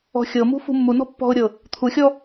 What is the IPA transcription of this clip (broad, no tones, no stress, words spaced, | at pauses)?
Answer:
ɔ̤xʲɤmṳ fṳmːunɔ̤ pːɔ̤ʊ̯ɾʲɤ | t̪ʰuxʲɔ